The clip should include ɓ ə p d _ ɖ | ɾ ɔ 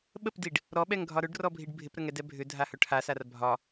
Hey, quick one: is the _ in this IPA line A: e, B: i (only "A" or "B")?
B